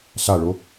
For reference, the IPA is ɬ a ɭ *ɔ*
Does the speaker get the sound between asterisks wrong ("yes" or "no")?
yes